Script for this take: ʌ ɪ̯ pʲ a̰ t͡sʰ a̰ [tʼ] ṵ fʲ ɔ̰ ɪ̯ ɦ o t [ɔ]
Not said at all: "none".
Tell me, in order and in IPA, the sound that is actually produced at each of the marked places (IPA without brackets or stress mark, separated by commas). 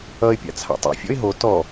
tˤ, ɔ